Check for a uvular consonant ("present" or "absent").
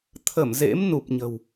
absent